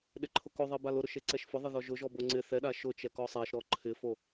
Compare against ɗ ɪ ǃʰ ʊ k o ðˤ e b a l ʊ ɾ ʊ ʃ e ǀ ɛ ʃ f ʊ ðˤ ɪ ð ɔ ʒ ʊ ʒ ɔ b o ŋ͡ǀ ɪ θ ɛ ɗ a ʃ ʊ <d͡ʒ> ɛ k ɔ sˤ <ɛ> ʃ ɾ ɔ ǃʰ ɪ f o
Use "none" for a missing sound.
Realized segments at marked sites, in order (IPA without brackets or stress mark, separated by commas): t͡ʃ, ɛ